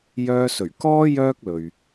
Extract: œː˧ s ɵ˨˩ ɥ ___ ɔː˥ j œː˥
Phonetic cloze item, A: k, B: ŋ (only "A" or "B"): A